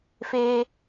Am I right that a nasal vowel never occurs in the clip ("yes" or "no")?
yes